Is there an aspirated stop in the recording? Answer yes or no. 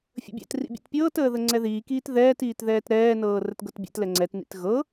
no